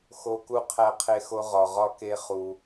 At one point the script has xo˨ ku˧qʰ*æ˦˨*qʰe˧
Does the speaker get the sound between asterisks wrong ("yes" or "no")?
yes